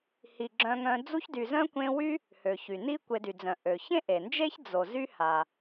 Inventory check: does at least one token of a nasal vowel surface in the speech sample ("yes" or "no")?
yes